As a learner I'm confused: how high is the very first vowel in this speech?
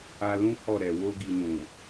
low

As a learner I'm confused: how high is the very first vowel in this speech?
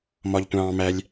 low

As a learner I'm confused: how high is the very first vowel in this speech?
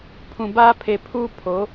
high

